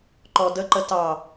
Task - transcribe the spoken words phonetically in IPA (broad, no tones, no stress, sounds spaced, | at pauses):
ǃ ɔ d ə ǃ ə t ɑ